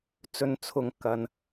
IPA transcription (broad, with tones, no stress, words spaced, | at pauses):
t͡sɵ˨nt͡sʰʊ˨˧ŋ kɐ˨n